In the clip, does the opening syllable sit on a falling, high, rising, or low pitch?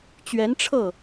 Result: rising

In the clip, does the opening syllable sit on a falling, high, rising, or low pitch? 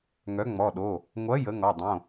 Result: rising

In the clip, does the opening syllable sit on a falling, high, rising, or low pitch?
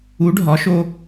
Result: rising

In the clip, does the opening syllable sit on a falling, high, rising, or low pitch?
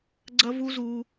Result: high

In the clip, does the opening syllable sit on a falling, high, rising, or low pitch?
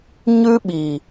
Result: high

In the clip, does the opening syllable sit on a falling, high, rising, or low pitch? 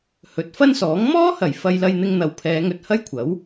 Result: rising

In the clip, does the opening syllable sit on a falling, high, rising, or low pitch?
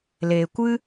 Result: low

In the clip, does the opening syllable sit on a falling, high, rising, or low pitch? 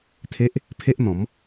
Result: high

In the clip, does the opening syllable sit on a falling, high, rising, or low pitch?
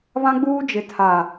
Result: high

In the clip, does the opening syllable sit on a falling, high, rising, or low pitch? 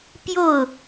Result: falling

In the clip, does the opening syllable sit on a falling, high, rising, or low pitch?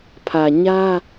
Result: low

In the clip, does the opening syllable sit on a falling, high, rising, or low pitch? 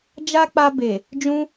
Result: high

